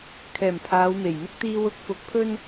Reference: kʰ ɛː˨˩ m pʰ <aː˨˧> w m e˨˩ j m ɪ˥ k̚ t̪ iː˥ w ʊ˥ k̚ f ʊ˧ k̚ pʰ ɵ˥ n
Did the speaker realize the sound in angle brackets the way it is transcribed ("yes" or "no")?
yes